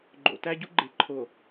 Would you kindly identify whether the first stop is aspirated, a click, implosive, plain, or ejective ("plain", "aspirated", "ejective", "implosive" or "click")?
click